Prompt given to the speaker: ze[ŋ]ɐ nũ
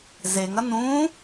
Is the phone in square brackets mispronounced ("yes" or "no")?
no